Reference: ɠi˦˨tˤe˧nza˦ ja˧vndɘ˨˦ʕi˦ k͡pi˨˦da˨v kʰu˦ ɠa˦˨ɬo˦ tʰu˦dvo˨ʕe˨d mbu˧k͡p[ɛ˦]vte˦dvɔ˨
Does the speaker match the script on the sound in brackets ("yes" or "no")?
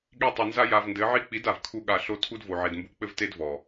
no